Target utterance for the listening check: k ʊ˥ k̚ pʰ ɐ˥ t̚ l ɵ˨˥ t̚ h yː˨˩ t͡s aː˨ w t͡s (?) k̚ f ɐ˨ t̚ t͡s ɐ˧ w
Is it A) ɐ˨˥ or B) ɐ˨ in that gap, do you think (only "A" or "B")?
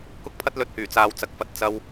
B